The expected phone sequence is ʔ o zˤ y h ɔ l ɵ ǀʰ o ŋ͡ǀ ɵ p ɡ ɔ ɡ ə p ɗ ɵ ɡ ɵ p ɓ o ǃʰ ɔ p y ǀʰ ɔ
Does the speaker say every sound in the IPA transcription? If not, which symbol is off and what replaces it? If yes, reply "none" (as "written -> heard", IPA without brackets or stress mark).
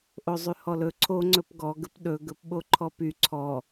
none